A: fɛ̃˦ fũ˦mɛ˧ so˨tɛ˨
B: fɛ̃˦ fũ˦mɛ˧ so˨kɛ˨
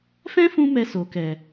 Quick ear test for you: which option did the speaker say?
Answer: B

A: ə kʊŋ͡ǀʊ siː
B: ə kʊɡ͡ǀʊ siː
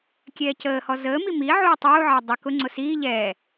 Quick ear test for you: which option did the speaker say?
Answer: A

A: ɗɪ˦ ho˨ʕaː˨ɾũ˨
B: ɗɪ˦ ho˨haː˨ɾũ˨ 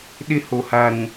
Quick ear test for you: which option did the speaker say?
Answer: B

